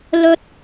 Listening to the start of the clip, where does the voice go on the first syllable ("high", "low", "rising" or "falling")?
high